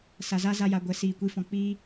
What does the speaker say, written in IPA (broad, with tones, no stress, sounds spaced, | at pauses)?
s a˨ z a˦ z a˧ j a˨ ɡʷ ɛ˨ s iː˨ kʷ i˨˦ f ɔ̃˨ k͡p iː˧